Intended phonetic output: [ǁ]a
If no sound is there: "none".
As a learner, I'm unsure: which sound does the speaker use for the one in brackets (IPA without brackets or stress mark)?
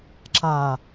ǁ